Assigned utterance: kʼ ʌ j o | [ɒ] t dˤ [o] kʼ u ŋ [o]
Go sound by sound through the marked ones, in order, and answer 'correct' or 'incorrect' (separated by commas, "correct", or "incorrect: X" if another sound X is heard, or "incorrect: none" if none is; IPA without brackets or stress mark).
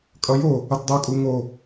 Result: incorrect: ʌ, correct, correct